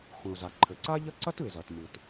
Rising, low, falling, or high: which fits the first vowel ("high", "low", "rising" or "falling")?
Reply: low